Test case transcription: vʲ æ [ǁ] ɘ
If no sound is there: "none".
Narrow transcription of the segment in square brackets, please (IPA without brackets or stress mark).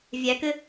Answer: k